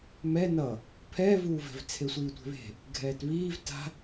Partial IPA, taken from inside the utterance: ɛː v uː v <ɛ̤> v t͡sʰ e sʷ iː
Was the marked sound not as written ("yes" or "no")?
no